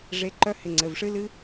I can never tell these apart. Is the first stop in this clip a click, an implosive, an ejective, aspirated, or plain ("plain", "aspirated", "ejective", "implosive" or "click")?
click